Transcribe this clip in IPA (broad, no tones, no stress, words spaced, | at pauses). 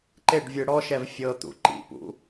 ǃeɖvʲɯ ɽɔʃɛv fʲɤt̪ṵ ǃḭpṵ